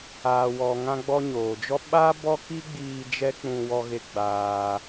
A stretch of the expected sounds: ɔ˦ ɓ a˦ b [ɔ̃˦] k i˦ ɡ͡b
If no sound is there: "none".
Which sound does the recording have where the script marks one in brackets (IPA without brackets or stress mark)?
ɔ˦